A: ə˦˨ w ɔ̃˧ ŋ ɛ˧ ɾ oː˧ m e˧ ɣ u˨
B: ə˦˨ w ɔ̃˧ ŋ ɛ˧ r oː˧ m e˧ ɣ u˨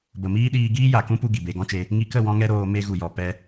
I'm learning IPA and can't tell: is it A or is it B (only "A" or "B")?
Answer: A